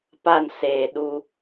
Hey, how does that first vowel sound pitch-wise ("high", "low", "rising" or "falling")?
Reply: falling